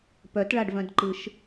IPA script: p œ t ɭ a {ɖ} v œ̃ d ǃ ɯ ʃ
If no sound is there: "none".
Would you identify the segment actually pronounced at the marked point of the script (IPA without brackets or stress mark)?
ɖ